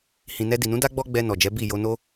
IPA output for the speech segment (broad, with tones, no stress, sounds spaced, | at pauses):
h ĩ˨ n ɛ˧ d i˨ n ũ˨˦ d a˦ ɡ͡b ɔ˦ ɡ͡b ɛ˧ n ɔ˨ d͡ʒ ɛ˨˦ b i˦˨ j o˧ n o˦